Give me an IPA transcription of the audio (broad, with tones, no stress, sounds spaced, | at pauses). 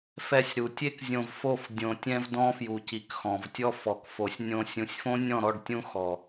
f ɛ˧ sʲ ɾ u˨ tʲ e˦ k zʲ õ˧ v f o˦˨ f dʲ õ˨ tʲ ɛ̃˧ v d ɔ̃˦ f j u˨ c i˨ k x ɔ̃˨ v tʲ ɔ˦ f ɔ˨ k f o˨ sʲ nʲ õ˧ sʲ ũ˨ sʲ f õ˦ nʲ ɔ̃˦˨ ɾ ɔ˦˨ ɖ tʲ ũ˦ x ɔ˨